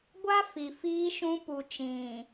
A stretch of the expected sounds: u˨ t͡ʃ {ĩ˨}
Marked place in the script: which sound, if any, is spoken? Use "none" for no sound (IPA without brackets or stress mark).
ĩ˨